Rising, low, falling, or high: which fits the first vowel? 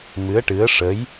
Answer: rising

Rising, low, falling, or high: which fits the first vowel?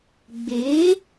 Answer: rising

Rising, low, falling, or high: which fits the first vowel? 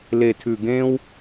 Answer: low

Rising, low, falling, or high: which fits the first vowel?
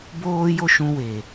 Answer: high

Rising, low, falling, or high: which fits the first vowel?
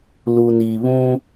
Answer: low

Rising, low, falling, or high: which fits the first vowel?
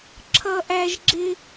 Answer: high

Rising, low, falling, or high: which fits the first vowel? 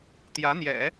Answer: rising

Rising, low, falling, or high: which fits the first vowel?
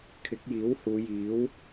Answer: rising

